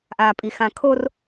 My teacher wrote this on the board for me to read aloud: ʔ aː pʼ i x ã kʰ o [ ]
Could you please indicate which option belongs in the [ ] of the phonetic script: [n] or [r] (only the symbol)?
r